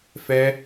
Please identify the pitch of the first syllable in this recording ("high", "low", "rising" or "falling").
high